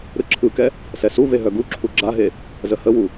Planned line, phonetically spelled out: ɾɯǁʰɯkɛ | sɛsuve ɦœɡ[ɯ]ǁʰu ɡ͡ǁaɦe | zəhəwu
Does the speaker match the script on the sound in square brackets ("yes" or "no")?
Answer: no